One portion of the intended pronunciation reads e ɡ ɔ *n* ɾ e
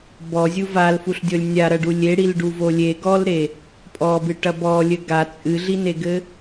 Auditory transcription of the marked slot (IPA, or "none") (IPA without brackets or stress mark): l